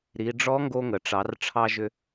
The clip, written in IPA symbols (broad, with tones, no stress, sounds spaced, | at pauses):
ɾ i˩˧ ɖ͡ʐ ɔ˧˥ ŋ ɡ o˧ ŋ ə˩ ʈ͡ʂ ɑ˩˧ r ʈ͡ʂʰ ɑ˥ ʒ ʏ˥